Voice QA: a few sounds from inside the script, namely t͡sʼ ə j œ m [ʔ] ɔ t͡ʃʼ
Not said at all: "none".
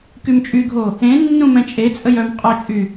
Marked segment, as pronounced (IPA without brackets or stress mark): qʼ